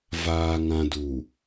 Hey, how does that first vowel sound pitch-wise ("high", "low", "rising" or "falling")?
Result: low